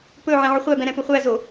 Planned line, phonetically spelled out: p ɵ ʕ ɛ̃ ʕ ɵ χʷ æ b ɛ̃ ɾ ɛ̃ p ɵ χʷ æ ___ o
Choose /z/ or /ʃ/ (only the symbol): z